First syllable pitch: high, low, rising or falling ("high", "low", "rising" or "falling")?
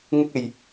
high